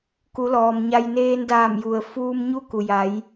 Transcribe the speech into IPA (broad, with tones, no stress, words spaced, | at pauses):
ku˩˧lɔː˩m ɲa˧j neː˧ndaː˧˩m ju˩ə̯ fuː˧m ɲu˥˨ku˩ja˩˧j